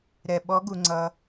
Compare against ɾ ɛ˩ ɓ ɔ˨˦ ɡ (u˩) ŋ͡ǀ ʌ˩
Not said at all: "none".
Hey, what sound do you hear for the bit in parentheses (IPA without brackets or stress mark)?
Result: u˩